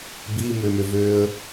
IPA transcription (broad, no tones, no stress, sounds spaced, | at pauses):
b i m ʏ m ʏ v ø ə̯